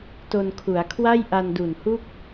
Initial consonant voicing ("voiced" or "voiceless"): voiceless